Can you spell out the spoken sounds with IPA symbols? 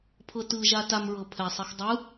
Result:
pʰ ɤ t ɯ ʒ a t a m ɹ ɤ pʰ ɛ sˤ e x dˤ ɯ

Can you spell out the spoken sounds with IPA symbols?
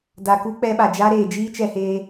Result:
d a˧ k u˦ k͡p ɛ˦ ɓ a˧ d͡ʒ a˦ ɾ eː˧ d͡ʒ iː˦ t͡ʃ ɛ˧ h eː˧

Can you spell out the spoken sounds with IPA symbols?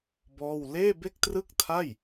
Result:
b ɔː˥˩ w l eː˥˩ b e˥˩ k̚ t r ɯ˥˩ k̚ tʰ a˥˩ j

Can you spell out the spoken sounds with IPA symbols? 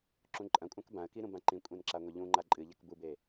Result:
ǁ ũ ǃʼ ɐ̃ kʷʼ ã k b ã ə̯ k i ɾ ũ b ã ǃ ĩ kʷʼ ẽ n ǁ a ŋʷ e ʎ ũ ŋ͡ǃ a ǃʼ ɨ ʎ a k b u b e

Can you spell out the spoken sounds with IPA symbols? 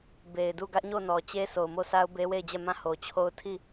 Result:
b e˨ ɪ̯ d u˦˨ ɡ ä˦ ʔ ɲ o˦˨ n ɔ˨ t͡ɕ e˦ sʰ o˨ ʊ̯ m o˦˨ s a˦ ʊ̯ b e˦ w e˦˨ ɪ̯ d͡ʑ ɛ˦˨ m ã˦˨ h o˨ t͡ɕʰ o˦ ʊ̯ tʰ i˦˨

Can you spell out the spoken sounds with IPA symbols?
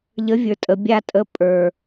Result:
ʎ ə˨˦ vʲ ə˞˨ tʼ ə˨ bʲ a˧ tʼ ə˨˦ pʼ ə˞˨

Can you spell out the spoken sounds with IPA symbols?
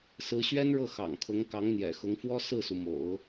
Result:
s ɹ̩˧˥ ɕ ɥ ɛ˥ n ɻ ɤ˥˩ x ɑ̰˨˩ ŋ kʰ ʊ˧˥ ŋ k ɑ˧˥ ŋ n̪ j ɛ̰˨˩ x ʊ˧˥ ŋ f w ɔ˥ s ɹ̩˥˩ s u˩ m o̰˨˩˦ ʊ̯

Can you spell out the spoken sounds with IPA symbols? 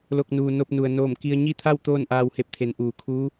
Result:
l o˧˩ k̚ n uː˩ n o˧ p̚ n u˩ ə̯ n oː˧˩ m k i˧ ə̯ ɲ i˥˨ t̪ʰ a˥˨ w t̪ oː˥˨ n ʔ aː˧ w h e˧˩ p̚ t̪ʰ e˩˧ n ʔ uː˩ kʰ uː˧˥

